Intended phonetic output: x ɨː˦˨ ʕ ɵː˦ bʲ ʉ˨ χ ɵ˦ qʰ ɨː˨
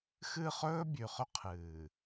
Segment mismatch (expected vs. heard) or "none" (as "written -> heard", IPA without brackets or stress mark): ʕ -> χ